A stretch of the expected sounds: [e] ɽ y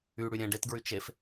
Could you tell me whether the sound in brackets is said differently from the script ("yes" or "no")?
yes